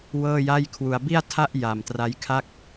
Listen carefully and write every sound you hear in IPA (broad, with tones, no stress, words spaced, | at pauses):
wɤː˥˩ja˥˩jkʰwu˧a̯ bi˥˩a̯tʰa˥˩ʔ ja˨˩mtra˦˥jkʰa˥˩k̚